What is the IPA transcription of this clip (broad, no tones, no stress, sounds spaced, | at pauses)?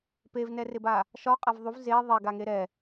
p e v n ɛ r ɪ b a | ʃ ɒ qʼ a v ðˤ u v z e ðˤ e ɡ a ŋ e ɾ ɛ